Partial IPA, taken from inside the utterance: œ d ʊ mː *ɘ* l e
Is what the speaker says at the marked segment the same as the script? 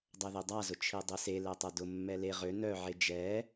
no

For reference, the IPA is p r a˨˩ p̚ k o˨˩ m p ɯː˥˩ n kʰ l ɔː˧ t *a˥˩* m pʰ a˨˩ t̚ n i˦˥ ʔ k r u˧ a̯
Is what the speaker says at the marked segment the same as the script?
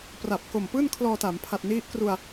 no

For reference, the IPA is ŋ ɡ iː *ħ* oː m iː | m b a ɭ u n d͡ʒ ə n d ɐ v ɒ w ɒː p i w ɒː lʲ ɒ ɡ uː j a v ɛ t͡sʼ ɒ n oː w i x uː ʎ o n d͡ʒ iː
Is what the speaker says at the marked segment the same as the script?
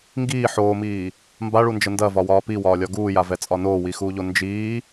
yes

